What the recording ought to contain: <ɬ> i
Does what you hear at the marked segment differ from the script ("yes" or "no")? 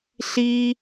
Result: no